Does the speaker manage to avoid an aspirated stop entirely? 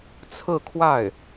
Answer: no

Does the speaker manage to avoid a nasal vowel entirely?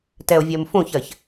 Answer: no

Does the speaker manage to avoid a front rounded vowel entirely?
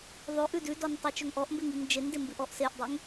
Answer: no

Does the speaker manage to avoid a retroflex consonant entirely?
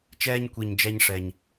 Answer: no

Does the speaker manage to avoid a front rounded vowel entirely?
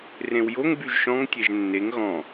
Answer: no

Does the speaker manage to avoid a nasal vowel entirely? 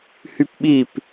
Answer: yes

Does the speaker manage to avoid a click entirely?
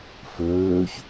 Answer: yes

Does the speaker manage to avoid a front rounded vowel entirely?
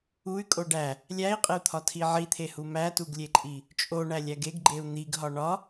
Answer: no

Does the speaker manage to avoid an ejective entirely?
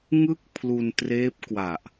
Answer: yes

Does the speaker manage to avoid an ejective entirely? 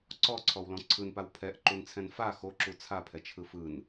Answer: yes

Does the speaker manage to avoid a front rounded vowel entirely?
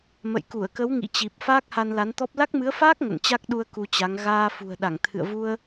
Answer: yes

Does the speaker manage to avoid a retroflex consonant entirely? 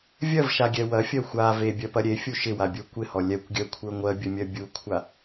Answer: yes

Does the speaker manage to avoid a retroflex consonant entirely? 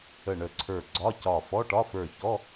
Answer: no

